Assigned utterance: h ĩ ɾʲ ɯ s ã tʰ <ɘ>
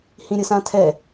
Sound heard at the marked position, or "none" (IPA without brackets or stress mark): ɛ